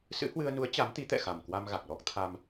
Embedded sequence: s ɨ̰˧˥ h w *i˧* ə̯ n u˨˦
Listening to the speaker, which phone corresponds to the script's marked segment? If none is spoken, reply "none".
ɨ˧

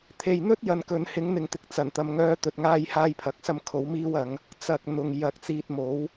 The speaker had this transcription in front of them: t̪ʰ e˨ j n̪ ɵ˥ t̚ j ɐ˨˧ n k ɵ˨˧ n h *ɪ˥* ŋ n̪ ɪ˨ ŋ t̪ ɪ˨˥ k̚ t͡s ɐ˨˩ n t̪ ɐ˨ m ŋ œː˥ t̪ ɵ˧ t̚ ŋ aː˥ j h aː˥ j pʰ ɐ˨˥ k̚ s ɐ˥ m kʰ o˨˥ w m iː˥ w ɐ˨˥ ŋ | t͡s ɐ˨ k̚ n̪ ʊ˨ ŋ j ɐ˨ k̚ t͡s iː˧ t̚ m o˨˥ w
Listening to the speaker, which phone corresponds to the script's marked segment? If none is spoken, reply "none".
ɪ˨˥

